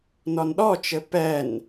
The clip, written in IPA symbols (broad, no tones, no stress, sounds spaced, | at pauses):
n ɔ n ɗ ɔ t͡ʃ ɘ p ɛ n